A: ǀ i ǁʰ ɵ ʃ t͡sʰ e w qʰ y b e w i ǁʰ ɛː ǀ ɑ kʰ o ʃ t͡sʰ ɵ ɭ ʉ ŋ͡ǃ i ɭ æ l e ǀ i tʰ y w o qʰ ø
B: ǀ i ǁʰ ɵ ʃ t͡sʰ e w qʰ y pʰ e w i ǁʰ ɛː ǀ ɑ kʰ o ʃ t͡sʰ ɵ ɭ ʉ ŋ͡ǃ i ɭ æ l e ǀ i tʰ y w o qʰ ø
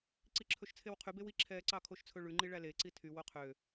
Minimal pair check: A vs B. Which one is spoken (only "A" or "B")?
A